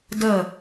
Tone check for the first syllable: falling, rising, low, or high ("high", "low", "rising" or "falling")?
falling